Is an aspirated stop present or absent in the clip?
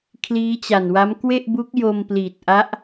present